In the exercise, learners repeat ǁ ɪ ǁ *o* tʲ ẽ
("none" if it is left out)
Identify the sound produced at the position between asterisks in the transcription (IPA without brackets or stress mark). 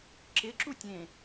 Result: u